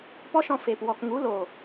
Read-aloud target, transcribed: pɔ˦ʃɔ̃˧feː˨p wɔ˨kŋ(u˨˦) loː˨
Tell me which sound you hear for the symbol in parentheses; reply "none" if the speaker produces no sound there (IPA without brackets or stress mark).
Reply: u˨˦